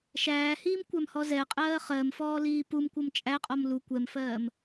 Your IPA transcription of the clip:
ʃæːhiːmkʷæmhɔ zɛqʼɜː χɜmfɔːliː pumkʷʌm t͡ʃʼæqʼɔm lu kʷɛmfɜːm

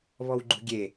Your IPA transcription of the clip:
βɔwɡ͡ǃṳɡʲe

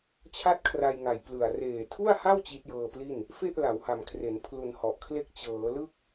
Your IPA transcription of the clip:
t͡ɕʰa˥˩t̚kʰra˧jŋa˨˩j plɯ˨˩a̯ reː˨˩tʰu˥˩a̯ha˥˩w t͡ɕi˦˥t̚jɤː˧pli˥˩n | fe˥˩ʔ la˩˦wha˨˩mkʰre˩˦n pʰlu˧nhɔ˨˩ʔkʰle˥˩k̚ t͡ɕɤː˩˦lɯ˥˩k̚

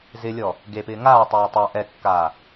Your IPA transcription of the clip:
zɪlʲɔ | ɡepɪː ŋaːtˤɛː tˤa ʔɛkːaː

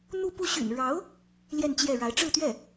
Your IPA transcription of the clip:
n̪u˥˧pu˥˩ ɕy̰˨˩nɻɑ˧˥ʊ̯ | ljɛ˥˧nt͡ɕjɛ˥˩ɻa˧˥ɪ̯ ʈ͡ʂɻ̩˥˧t̪ɥɛ˥˩

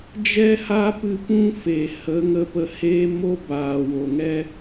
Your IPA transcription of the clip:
d͡ʒɛ˦ha˦pɨ˧ pũ˦fe˨ hə˨˦ ŋə˧pə˧heː˦ mo˦baː˨ wo˨ŋɛ˦

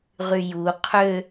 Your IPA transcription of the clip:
ʁyju qʰø

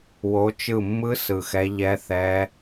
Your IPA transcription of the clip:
wo˨˦t͡ʃɯ˧˩mːɯ˦˥ sɯ˧˩xɛ˦˥ ʎɛ˦˥θɛ˦˥

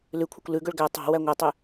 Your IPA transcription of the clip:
lʉkʷʰœkʷ lʉɡɵɭ ɡæ tˤɑ̤ wæŋʷœtˤy

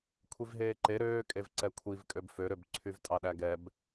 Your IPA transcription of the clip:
kʷʰivɦeːǃe ɾøːkʼevǀɛ kʷʰivkʼøb føɾøb ǀʰyvtʼɑɗæɡɛb

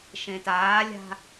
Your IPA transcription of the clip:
ʃẽtaːlʲa̤

